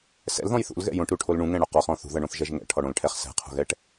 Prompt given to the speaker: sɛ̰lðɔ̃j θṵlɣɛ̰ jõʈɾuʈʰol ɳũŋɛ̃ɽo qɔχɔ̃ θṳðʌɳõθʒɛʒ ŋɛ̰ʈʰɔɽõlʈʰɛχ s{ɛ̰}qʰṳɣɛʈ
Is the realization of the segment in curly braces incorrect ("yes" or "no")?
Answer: yes